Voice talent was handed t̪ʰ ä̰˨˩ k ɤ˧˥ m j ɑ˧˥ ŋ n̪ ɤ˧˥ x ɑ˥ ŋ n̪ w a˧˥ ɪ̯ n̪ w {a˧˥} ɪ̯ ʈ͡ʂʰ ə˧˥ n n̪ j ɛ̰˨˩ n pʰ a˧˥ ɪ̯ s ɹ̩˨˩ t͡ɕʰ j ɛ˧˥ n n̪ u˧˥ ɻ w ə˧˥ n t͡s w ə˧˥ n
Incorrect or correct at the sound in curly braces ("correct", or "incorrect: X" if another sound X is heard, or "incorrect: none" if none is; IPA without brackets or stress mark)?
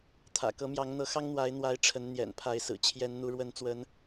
correct